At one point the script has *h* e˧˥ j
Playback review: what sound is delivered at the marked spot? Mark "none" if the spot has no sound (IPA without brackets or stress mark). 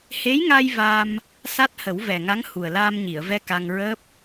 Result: h